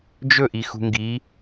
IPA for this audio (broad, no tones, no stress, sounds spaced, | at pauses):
d͡ʒ ɵ ʔ i x ṳ ŋ ɡ i